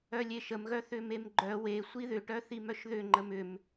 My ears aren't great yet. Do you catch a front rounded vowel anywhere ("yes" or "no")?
yes